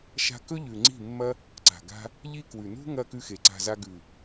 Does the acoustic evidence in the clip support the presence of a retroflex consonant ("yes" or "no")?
no